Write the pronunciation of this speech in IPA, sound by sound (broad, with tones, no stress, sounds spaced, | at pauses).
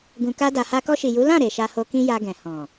ɡ ũ˨ k a˧ d a˨ h a˧ k ɔ˧ ʃ i˨ j u˨˦ l ã˦˨ ɾ e˨ ʃ a˧ h o˧ k ĩ˦ j a˧ ɡ ɛ̃˨ h ɔ̃˨